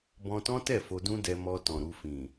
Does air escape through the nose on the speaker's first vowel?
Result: yes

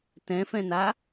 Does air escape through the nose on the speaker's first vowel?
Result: yes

